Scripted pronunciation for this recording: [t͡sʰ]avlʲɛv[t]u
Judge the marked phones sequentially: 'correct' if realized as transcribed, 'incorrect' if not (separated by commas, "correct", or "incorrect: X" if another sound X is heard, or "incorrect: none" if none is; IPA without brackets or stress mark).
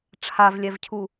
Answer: incorrect: ʈ͡ʂʰ, incorrect: cʰ